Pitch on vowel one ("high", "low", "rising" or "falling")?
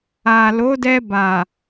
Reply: low